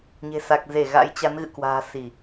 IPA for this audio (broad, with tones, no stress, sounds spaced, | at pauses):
ɲ e̤˨˩ s a˨˩ k̚ z e˧˩ ɣ a̰˧˥ j t͡ɕ a˨˦ n ɣ ɨ̰˧˨ k w a̤ː˨˩ s i˧˩˨